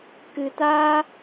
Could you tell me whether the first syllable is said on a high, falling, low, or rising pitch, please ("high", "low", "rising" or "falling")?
low